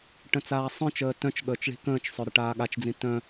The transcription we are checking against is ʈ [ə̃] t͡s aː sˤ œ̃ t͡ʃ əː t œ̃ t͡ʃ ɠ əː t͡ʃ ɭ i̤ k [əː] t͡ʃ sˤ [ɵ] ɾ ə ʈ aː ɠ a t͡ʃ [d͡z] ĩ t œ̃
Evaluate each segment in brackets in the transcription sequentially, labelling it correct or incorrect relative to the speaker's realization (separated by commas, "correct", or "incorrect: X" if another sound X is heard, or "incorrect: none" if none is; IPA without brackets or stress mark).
correct, incorrect: ə̃ː, incorrect: ø, correct